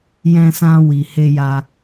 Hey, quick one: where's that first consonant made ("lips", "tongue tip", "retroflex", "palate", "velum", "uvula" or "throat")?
palate